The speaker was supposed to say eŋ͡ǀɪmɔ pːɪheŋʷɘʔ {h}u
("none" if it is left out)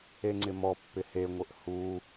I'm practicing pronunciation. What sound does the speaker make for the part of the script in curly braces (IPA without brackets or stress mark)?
h